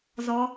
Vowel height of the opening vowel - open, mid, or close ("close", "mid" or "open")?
mid